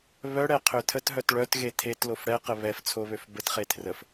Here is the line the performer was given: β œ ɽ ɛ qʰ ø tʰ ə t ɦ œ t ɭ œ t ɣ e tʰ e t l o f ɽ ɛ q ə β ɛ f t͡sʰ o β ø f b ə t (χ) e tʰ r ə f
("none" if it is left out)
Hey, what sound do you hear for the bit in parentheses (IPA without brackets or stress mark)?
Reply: χ